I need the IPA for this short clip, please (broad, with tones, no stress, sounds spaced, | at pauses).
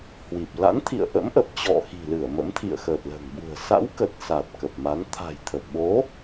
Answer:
h w i˨˩ p̚ l a̰˧˥ n t̪ʰ ḭ˧˨ ə̯ ʔ ə̰˧˥ m ʔ ə˨˩ p̚ t͡ɕ ɔ̰˧˨ x i̤˨˩ l ɨ˧˩ ə̯ m ə̰˧˥ m t̪ʰ ḭ˧˨ ə̯ x əː˨˩ t̚ l ə̤ː˨˩ ŋ ɓ ṳ˨˩ ə̯ s a̰˧˥ w k ə˨˩ t̚ s a˨˩ t̚ k ə˨˩ p̚ m a˨˦ n t̪ʰ a̤˨˩ j t̪ʰ ə˨˩ p̚ ɓ o˨˦